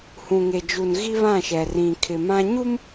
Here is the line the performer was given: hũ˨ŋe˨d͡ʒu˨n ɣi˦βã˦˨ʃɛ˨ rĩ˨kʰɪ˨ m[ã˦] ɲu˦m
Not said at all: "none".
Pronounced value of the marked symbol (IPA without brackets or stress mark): ã˦